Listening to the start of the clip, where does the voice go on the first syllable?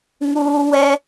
high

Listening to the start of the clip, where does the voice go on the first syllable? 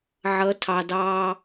rising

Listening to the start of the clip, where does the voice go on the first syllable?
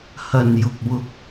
low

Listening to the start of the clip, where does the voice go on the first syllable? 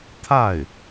falling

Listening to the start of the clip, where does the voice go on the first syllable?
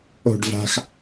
falling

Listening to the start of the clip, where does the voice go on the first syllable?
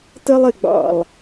high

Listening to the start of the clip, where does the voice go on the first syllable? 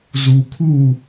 low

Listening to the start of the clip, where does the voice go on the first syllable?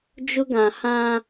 high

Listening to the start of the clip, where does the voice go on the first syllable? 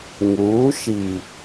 rising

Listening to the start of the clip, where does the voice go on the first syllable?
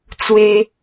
high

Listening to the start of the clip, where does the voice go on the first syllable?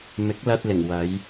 rising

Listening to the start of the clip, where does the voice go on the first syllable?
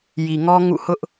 low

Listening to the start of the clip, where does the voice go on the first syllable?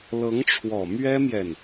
rising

